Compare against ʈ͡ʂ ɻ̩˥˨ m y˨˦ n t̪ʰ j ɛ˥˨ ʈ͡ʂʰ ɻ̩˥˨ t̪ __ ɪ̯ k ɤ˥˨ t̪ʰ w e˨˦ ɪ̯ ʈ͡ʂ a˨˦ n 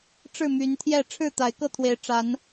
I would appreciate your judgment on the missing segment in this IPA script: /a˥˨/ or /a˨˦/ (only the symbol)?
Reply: a˨˦